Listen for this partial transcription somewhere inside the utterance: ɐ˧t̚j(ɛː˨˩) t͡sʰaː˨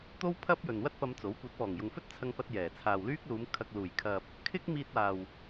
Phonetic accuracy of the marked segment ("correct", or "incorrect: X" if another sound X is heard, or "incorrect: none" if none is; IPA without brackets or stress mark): correct